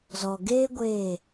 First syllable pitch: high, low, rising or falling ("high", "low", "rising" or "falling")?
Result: low